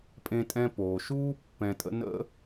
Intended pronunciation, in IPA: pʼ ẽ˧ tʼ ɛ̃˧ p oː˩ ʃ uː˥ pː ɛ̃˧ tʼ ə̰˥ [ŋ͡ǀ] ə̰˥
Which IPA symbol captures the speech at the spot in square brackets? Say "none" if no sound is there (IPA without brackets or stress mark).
n